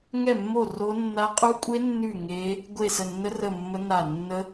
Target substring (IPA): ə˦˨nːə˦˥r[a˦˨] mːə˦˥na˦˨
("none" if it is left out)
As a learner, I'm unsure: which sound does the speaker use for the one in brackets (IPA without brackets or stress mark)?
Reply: ə˦˨